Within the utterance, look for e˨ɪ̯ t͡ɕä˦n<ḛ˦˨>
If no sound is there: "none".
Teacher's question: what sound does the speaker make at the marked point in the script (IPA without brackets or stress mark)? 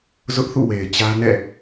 ɛ̰˦˨